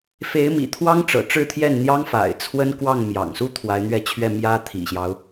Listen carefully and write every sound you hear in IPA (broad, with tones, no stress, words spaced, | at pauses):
fe˧˥ɪ̯mḭ˨˩t̪ʰwɑ˥ŋ ʈ͡ʂɤ̰˨˩ʈ͡ʂɻ̩˥˧t̪ʰjɛ˥˩nn̪jɑ˥ŋ fa̰˨˩ɪ̯t͡sʰwə˥nkwɑ˥˩ŋ mjɑ̰˨˩ŋsu˥ t̪ʰwa˧˥ɪ̯n̪ɥɛ˥˧ t͡ɕʰɥɛ˥˩ mjä˥t̪ʰḭ˨˩ɕjɑ˦ʊ̯